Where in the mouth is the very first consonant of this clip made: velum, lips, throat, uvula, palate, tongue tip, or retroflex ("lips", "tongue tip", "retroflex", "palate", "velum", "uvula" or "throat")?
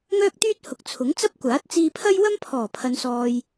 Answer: velum